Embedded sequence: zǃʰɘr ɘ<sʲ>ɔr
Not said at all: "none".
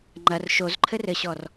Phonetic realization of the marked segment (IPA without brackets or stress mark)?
ɕ